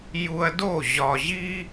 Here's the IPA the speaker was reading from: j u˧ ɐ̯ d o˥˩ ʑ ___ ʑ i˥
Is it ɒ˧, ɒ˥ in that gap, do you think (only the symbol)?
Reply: ɒ˧